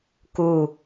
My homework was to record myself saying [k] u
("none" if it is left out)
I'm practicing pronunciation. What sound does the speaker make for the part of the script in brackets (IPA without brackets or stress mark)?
k